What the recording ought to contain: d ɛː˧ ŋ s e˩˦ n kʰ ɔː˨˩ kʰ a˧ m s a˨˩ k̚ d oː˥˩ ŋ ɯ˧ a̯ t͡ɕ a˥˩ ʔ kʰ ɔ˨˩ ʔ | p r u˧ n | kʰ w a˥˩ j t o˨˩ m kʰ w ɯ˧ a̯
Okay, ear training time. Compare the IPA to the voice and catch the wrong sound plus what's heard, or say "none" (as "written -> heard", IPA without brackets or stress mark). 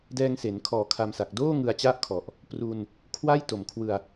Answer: none